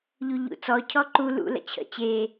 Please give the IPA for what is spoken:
ʎuʎṵt͡sɔ cʰɔǃu lṵ lə̰t͡ɕʰə̰ t͡ɕe

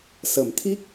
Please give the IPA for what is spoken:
sə˨˩˦mt̪ʰi˦˥k̚

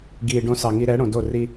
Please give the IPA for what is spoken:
ɡiː˨ɖõ˧ sɑ˨ŋi˧ ɾɛ˨˦ɽõ˨do˦˨ ri˧

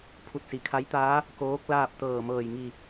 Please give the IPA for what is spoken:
pʰu˧˩t̚si˩˧kʰa˧˥jt̪aː˧˥ | koː˧˥k̚ laː˥˨p̚t̪ɤː˧˩mɤː˧˩jŋi˧˩

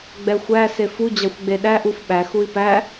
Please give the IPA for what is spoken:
ɡ͡bɛxʷæ sefu d͡ʑɑxʷɡ͡beɗæ ʔufɓæ xui̯pæ

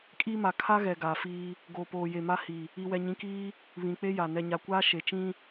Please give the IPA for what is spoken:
kʼiː˦ma˨ kʰa˦ɣɛ˨ ɡaː˨fiː˦ | ɡoː˨poː˨je˨ma˦ hi˨ | i˨wɛ˨ɲĩ˨kiː˦ | βĩ˨k͡pe˦ja˨ nɛ˨ɲa˨kʷaː˦ ʃe˨t͡ʃĩ˦

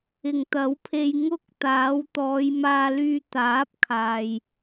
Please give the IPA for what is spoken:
ɪ˨ŋt̪ɐ˨˥wpʰe˧j ŋʊ˥k̚t̪aː˨˥w t̪ɔː˨˧jmaː˧lyː˧ t̪aː˨˥p̚ kʰaː˨j

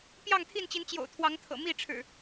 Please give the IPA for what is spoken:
pjɑ˥˨ŋt̪ʰi˥˨nt͡ɕi˨˦n t͡ɕjo̰˨˩ʊ̯t̪ʰwɑ˨˦ŋt̪ʰɤ̰˨˩ mi˥˨ʈ͡ʂʰɻ̩˨˩

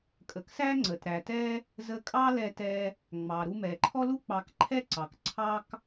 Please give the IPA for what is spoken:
kʼə˩ksæ˥ ŋ͡ǀə˩tɾæ˩tɛ˥ | zə˧kʼɑ˥lɛ˧tɛ˧ | ŋ͡mɑ˩ɾu˧mɛ˩ ǃʰɔ˥lu˥ k͡pɑ˧k ǃʰɛ˥ǀɑ˩k ǀʰɑ˥k

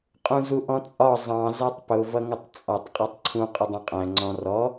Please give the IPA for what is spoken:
qʼũzuʔɔ̃t͡sʼɒ zˤɑ̃ zɒtˤpʊ vʌŋʊtˤt͡sʼɒtˤ qʼɒtˤǀʰũ qʼʊdˤũqʼæ̃ ŋ͡ǀɔ̃rɔ

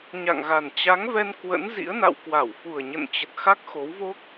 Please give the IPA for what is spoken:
ɲa̰˧˨ŋɣa˨˩n t͡ɕa˨˦ŋvɛ˧n kwə̰˧˥nzḭ˧˥ə̯na̰˧˨w kwa˧˩wfu˨˩ə̯ɲə̰˧˨nt͡ɕə˨˩t̚ xa˦˥k̚xo˨˦wvo˦˥k̚

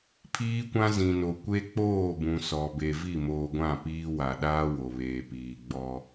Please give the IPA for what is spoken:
pʰiː˦kʷã˦ zĩ˨no˨kʷe˦ k͡poː˦˨bũ˨ sɔ˨ be˨vi˦˨moː˨ ɡʷã˦˨piː˦wa˨ ɗaː˦ wo˨βeː˨piː˨ ɡ͡bɔ˦

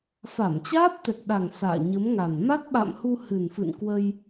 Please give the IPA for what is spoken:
fa˧˩mt͡ɕaː˦˥p̚t̪ɛ˨˩k̚ɗa˨˩ŋ sa̰ː˧˨ɲə˨˦mŋa˨˩n ma˦˥t̚ɓa̰˧˨mhu˧ hɨ˨˩nfɨ̰˧˨n kwə˧j

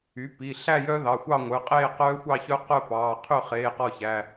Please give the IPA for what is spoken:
y˩˥pi˩˧˩ ɬæ˥˧jœ˦˥ ðɑ˩˧˩xʷɑ˥˧ŋʷœ˩˧˩qʼeː˥˧ qœː˦˥xʷɑ˥˧çœ˦˥ qœ˥˧pɑː˩˧˩ qʰø˥˩χeː˩˧˩qɔ˧˩ çæ˩˧˩

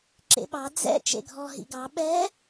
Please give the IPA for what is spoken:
ǁḛɓɑ d͡zɛ̰ t͡ʃḛɡʱɔ ɦḭɡɑ ɓɛ

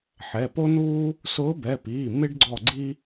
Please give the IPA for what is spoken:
ħɛ˩˧˩po˥nuː˥ | sʊː˧˥bɛ˩˧˩piː˩˧˩ mɪ˥ɖɡ͡ǀɔ˦˨ɡ͡ǀi˥

